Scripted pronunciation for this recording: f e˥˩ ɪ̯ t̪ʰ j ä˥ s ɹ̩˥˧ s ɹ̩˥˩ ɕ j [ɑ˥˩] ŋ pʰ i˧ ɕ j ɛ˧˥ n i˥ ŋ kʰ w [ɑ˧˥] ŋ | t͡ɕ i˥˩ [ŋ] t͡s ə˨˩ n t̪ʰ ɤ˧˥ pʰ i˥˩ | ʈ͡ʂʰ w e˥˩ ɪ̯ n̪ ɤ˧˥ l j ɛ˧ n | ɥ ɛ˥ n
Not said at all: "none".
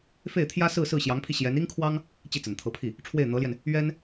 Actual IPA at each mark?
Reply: ɑ˧˥, ɑ˥, none

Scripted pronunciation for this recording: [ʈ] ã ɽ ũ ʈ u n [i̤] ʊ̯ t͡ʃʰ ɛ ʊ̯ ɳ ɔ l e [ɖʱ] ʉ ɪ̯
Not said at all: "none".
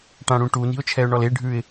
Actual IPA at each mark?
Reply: ʈ, i̤, ɖʱ

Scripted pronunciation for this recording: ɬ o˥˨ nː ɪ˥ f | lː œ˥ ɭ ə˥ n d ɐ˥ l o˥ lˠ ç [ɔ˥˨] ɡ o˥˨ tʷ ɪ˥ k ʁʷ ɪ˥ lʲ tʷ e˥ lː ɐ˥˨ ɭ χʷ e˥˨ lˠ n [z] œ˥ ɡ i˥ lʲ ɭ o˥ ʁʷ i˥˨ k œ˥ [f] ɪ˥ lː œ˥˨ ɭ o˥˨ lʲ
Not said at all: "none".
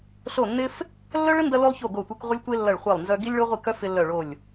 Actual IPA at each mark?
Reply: o˥˨, z, f

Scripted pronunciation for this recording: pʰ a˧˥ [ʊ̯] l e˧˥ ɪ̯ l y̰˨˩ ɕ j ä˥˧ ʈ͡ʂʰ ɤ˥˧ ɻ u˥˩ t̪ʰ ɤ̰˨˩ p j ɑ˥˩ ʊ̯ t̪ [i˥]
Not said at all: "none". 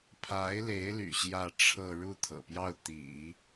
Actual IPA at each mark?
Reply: ɪ̯, ḭ˨˩˦

